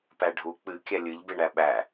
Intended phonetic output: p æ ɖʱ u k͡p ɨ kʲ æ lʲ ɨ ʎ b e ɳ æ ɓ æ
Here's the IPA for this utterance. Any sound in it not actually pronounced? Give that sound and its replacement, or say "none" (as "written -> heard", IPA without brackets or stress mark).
none